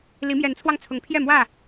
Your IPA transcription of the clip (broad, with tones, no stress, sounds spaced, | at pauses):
l i˨˦ m j ɛ˨˦ n t͡sʰ w ɑ˧ ŋ t͡sʰ ʊ˨˦ ŋ pʰ j ɛ˥˨ m w ä˥˨